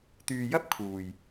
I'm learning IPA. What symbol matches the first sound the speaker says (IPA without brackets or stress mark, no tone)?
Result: t̪